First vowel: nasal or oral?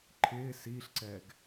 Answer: oral